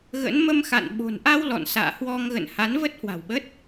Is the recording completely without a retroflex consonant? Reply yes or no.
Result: yes